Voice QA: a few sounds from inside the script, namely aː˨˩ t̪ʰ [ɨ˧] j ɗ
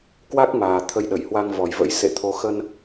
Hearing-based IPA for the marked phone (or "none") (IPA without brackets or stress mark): ə˧